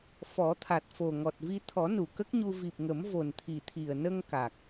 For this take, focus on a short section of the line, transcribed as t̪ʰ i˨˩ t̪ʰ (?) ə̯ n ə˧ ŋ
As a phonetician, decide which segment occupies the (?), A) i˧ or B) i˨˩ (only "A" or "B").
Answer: B